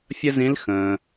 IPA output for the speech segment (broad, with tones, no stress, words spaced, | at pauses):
fʲə˥zĩ˧˥l xə̃ː˩